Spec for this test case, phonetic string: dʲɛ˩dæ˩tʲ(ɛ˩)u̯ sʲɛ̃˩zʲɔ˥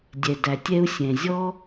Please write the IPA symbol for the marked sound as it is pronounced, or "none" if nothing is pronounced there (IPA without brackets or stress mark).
ɛ˦